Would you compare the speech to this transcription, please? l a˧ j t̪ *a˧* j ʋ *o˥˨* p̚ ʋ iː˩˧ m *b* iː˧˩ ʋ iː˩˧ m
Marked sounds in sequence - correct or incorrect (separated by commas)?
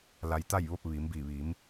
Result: incorrect, correct, correct